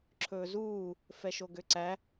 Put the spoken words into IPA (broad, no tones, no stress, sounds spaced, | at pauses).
ǁʰ ɵː z uː | f ɛ ʃ o ɡ ø ǀ æ